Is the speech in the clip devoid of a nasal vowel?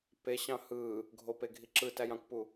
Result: no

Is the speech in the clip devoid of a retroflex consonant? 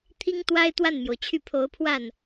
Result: yes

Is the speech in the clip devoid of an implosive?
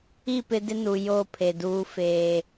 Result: yes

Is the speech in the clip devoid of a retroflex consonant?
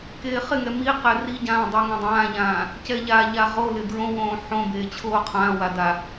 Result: yes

